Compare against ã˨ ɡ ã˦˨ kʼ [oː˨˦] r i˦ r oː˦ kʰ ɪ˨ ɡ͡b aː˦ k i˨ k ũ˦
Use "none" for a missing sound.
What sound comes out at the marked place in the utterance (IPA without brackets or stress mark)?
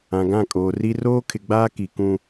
oː˨